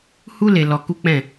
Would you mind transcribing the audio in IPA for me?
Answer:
hu˦ le˧lɔ˧ ku˦k͡pɛ̃˦˨

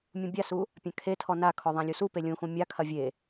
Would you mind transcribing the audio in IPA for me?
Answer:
mʲũbʲasu | pʲãkʰetʰɔ nakʰɔ ðˤãlʲusupe lʲũxũ mʲakʰɐ vʲe

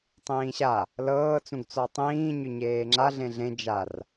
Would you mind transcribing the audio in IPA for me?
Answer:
tˤĩːɕa | lɤːt͡sũɡt͡sɔ tˤĩːɲʏ ɲeːŋ͡ǁa ɮẽɮẽ d͡ʒar

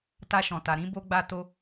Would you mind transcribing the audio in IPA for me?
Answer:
ta˧ʃɔ̃˨ta˨ ɾĩ˨˦ bo˦ɡ͡ba˦to˦

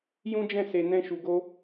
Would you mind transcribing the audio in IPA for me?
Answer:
jũ˦d͡ʒɛ̃˦˨se˨ nɛ̃˧ʃu˨ɡo˧

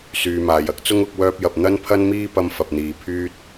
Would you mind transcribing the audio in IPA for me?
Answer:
syː˨maː˨jɐ˥k̚t͡sʊ˥ŋ ʊ˨˥k̚wœː˥p̚jɐ˧p̚ n̪ɐ˥npʰɐ˥nmiː˥ pɐ˥mfɐ˧p̚n̪iː˧ pʰyː˥t̚

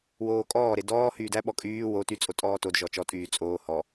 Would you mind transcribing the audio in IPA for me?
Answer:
woːkʼɔːɾe dɔː hyːdæɓɔ kʼyː wo ty t͡sʼotʼɔːtodʒɔ t͡ʃɔtʼyː t͡sʼoː hɔ

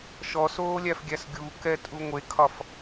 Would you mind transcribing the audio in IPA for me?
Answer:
ʃɔsoːlʲæfɡʲæs ɡʲukɛtʼu ŋʷekʰɒf

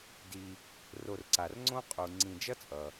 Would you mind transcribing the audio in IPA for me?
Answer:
di˨ | ro˨rǀa˩rŋ͡ǀõ˦ qʼu˩ ŋ͡ǀĩ˨d͡ʒʌ˥t͡sʼʌ˩

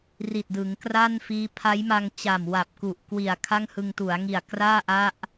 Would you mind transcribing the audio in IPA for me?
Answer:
ri˨˩t̚dɯ˩˦ŋkraː˥˩nfiː˦˥ pʰa˦˥jma˧ŋt͡ɕa˨˩m wa˨˩p̚ku˨˩ʔ kwi˨˩a̯ kʰa˥˩ŋhɯ˧ŋtu˩˦a̯ŋi˨˩a̯ kraː˥˩ʔa˦˥ʔ

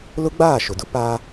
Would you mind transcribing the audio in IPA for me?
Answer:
lʊ˦ɡ͡baː˦˨ ʃʊ˨dʊ˦paː˦

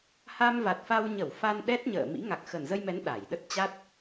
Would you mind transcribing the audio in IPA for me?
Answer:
ha˧mva˨˩t̚fa˧wɲə˧˩w fa˧nɗɛ˦˥t̚ ɲə̰ː˧˨mḭ˧˥ ŋa˨˩k̚xə˨˩nzə˧jmɛ˨˦n ɗa˧˩j ɗə˦˥t̚t͡ɕa˦˥t̚

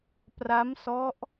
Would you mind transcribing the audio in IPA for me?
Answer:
pra˦˥msɔ˦˥ʔ

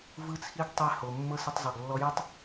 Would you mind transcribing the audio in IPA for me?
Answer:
vɯ˦t͡sʰi˦ɡ tˤɛ˧ ho˨ mːɤ˦sɯ˧tˤzˤu˨ɡ lːɔ˧jɯ˦tˤ

